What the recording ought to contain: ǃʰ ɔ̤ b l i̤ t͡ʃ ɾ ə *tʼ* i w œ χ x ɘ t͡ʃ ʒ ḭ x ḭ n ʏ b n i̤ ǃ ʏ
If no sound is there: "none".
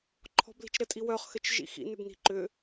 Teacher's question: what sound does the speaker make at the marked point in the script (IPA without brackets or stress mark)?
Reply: tʼ